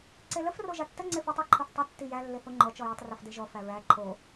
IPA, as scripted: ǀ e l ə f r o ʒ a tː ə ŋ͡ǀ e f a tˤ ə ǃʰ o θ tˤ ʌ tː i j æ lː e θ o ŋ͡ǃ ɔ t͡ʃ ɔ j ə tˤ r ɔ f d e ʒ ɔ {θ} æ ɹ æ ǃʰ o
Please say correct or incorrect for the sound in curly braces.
incorrect